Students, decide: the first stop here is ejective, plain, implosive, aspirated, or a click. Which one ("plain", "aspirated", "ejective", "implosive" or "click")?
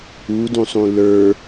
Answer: plain